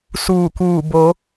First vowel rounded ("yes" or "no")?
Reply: yes